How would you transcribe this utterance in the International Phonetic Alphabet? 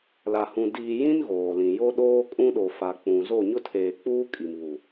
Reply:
l a˨ h ũ˨ d iː˨ j ĩ˦ n ɣ oː˨ l ĩ˨ j o˦ ɗ oː˦ kʼ ũ˦ ɗ o˨ f a˨ k͡p ũ˨ z o˦˨ ɲ ʊ˦ tʰ eː˨ k͡p uː˦ kʼ i˨ m β u˨

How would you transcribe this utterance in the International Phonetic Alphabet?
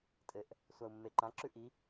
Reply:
tʼ ɘ ʔ | sʷ a u̯ mː e ǃ ã ǁ ʉ ʔ i

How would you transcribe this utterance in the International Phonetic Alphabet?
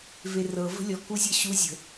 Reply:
v e r ɤ v ə̤ lʲ ɔ k u zʲ ɤ ɕ u zʲ ə̤

